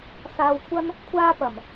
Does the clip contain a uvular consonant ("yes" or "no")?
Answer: no